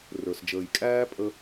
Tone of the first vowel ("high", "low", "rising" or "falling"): low